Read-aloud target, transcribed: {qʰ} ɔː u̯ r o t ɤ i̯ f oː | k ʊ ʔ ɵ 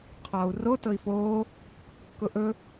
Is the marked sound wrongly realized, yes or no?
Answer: no